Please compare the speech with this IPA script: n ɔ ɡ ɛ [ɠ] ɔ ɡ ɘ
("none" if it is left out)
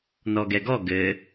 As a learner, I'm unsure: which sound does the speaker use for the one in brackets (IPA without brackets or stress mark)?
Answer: ɡ